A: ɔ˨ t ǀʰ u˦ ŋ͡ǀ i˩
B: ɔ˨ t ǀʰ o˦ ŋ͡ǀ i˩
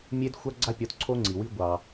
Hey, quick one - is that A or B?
B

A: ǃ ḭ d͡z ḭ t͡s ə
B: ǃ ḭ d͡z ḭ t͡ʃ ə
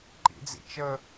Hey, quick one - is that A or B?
B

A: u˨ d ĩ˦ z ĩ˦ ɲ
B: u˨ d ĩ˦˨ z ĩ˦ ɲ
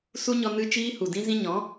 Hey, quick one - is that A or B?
A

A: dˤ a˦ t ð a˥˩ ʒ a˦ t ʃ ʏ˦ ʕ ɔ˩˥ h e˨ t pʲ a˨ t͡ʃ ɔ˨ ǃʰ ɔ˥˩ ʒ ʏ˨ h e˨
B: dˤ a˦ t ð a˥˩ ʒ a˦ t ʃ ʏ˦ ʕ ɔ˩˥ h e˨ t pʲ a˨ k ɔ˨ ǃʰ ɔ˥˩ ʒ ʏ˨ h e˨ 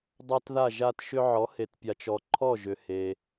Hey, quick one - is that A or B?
A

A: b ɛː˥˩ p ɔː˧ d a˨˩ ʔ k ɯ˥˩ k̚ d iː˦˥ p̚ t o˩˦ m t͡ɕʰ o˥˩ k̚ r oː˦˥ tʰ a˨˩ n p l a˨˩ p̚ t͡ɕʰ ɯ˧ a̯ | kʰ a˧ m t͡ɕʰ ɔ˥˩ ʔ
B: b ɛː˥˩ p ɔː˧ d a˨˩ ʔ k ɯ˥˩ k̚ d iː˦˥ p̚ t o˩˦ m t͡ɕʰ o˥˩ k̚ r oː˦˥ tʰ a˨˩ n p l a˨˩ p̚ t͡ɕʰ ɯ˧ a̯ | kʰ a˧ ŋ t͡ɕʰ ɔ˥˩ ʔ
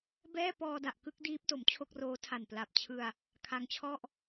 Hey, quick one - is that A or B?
B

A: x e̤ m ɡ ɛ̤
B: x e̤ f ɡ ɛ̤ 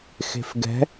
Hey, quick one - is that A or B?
B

